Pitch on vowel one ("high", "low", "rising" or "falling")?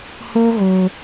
high